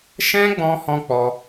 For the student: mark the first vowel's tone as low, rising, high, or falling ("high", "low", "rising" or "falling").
high